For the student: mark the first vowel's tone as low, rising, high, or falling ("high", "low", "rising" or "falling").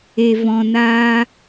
low